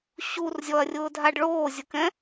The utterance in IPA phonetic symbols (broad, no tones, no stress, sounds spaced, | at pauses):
ɕ u r zʲ ɔ ɐ̯ rʲ ʊː dʱ a ɖ ɭ oː zʲ ʊ k ɛ̃